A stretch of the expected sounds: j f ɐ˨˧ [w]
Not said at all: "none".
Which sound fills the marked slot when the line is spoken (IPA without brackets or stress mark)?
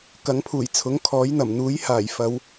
w